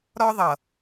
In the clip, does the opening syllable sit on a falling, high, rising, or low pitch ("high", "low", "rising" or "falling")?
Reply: high